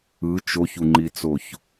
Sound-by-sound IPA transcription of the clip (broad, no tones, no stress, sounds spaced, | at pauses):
ɯ t͡ʃ o ç u ŋ͡ǃ i t͡s o ç